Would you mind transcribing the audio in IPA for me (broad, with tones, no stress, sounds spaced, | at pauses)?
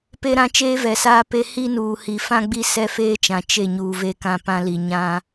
p e˦ ɾ ã˦ t͡ʃ eː˦ v ɛ˨ s aː˦ p e˦ h i˦ n uː˨ h i˨ f ã˦ ɡ͡b i˦ s ɛ˦ f eː˦ t͡ʃ ã˨ t͡ʃ e˦˨ ɲ uː˨ v e˦˨ k ã˦˨ p ã˦ l i˨ ɲ ã˦